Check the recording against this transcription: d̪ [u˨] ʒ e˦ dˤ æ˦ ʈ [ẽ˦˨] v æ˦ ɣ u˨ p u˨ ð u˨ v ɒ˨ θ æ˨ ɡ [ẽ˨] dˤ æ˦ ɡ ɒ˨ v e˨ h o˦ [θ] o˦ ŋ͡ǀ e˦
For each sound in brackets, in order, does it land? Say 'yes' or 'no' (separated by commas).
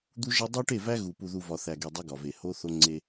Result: no, no, no, yes